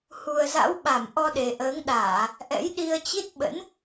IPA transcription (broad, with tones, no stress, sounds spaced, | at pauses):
h u˨˩ ə̯ z a̰˧˥ w ɓ a˧˩ m ʔ ɔ˧ ɗ e˨˩ ʔ əː˨˦ ŋ ɗ aː˧˩˨ | ʔ ɛ̰˧˥ j ɗ i˧ ə̯ t͡ɕ i˦˥ t̚ ɓ ə̰˧˥ n